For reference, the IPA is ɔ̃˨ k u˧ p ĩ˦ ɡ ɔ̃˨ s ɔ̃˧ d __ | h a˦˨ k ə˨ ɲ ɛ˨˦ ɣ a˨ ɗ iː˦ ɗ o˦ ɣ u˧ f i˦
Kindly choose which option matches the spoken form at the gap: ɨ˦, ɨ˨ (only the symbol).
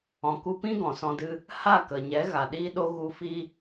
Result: ɨ˦